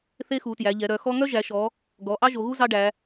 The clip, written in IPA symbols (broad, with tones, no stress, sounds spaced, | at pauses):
θ e˥ x u˩˧ t j æ˩˧ ʎ ɛ˩˧ ɾ œ˩˧ x ɔ˥ ŋ œ˥ ʒ æ˩˧ ʃ ɔ˩˧ | ɡ ɔ˩˧ ʔ ɑ˥ ʒ o˩˧ ɣ u˥ z ɑ˥ ɖ æ˩˧